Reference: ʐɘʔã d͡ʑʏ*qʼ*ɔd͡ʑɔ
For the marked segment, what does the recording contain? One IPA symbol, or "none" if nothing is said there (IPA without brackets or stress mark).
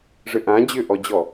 ʔ